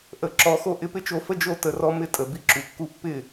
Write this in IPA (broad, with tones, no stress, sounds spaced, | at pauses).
ʔ ə˨˦ ǁ ɔ˨˦ x o˦ ʔ ɪ˧ p ɪ˦ t͡ʃ o˧ f ə˦ d͡ʒ o˦˨ t ə˨ r ɔ˦ m ɪ˦ tʼ ə˨ b i˦ ǁ u˨ kː u˦ pː ɪ˦˨